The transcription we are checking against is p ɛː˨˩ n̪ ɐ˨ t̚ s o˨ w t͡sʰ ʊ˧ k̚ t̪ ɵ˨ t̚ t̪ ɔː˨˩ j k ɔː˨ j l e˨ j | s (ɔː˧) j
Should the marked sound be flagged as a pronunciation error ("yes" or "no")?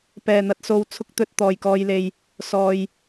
yes